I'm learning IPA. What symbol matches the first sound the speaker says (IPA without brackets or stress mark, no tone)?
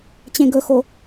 t͡ɕ